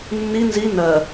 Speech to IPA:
nː i n z i n ɜ

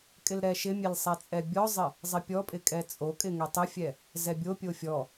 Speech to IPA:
kʼ ɪ l ɾ ɛ ʃ ɪ mʲ ɛ l sˤ ɛ t͡sʼ ɛ bʲ ɔ zˤ ɪ | zˤ ɪ pʲ ɔ pʼ ɪ kʼ ɛ t͡sʼ o kʼ ɪ ŋ ɛ tˤ ɪ fʲ ɛ | z ɛ bʲ o pʲ o fʲ ɔ

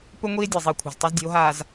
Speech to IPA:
p ɵ˦ ŋʷ iː˦ e̯ dʲ e˨ zˤ iː˨ kʷʰ a̤˨ z tˤ o˦ z dʲ e̤˨˦ o̯ ɦ aː˨ z

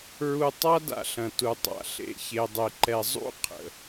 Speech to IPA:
ɹ u˧ tˤ a˦ d a̰˧ ɬ ɐ̃˨ t u˨ tˤ a̰˨ ɬ ḛ˧ ç e˧ dˤ e˧ ǃ ɛ˧ zˤ ṵ˦ qʰ ə̰˨

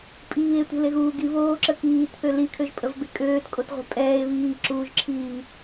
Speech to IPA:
pʼ iː e̯ tʷ e̤ l e ɣ uː ɡ i β oː ǁ ə k iː t θ ø l i kʰ ø ʒ pʼ ə v b e kʼ øː t kʼ o t ʁʷ ɛ̤ pʼ ɛː e̯ β iː ǁ uː ʒ ǁʰ iː

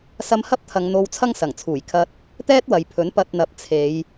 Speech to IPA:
s ɐ˧ m h ɐ˥ p̚ t̪ʰ ɐ˨˧ ŋ n̪ o˧ w t͡sʰ ɐ˥ ŋ s ɐ˨˩ ŋ t͡sʰ uː˨˩ j kʰ ɐ˧ t̚ | t̪ ɛː˥ t̚ w ɐ˨ j pʰ ɵ˨˥ n p ɐ˧ t̚ n̪ ɐ˨˥ p̚ t͡sʰ e˨˧ j

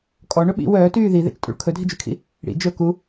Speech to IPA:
kʼ ɔ ɳ ɵ ɓ ḭ w œː t yː ð i ð ḛ t͡ʃ tʼ ṵ ɭ kʰ ɵ dʱ i d͡ʒ y kʰ ḭ | ɽ ḭ d͡ʒ ɵ k u

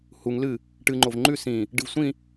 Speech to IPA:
h u ŋ l ɨ | ʈ ɨ ŋ͡ǃ o v ŋ͡ǃ ʉ s ĩ | ɖ ɨ v sʷ ĩ

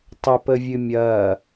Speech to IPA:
tˤ ə p ə vʲ ɨ mʲ ɐː

